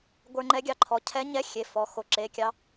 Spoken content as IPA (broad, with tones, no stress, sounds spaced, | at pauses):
ɡʷ ə˞˧ ŋ͡ǃ ɛ˧˥ ɡʲ ɑ˧˥ ǃʰ ɔ˩˧˩ cʰ ɛ˧˥ ɲ ɛ˧˥˧ xʲ e˩˧˩ f ɔ˩˧˩ x o˩˧˩ ǁ e˩˧˩ kʲ ɑ˧